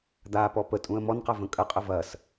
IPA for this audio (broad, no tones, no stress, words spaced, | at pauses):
d̪apɔ pətʼũə̯ mɔnqɐvə̃ kʼəqʼə vɐs